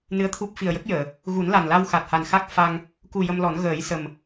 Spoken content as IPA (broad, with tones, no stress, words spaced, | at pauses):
nɨ˧˥ə̯t̪ʰu˦˥p̚ fi˨˩ə̯jə˦˥k̚jəː˨˩˨ | ɣu˨˩˦nla˨˩nla˧w xa˨˩t̚ha˨˩n xa˦˥k̚ fa˧ŋ | ku˨˩ jə˧mlɔ˨˩˦n ɣəː˨˩˦jsə˨˩m